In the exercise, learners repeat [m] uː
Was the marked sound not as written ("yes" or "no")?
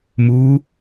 no